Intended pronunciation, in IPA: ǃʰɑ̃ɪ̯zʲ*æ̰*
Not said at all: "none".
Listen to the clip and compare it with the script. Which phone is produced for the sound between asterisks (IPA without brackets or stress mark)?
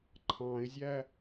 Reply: æ